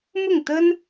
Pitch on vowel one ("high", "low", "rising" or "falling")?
falling